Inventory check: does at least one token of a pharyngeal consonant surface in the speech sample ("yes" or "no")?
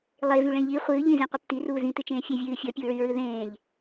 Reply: no